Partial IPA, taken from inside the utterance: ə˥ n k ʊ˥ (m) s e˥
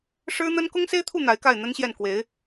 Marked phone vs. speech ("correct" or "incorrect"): incorrect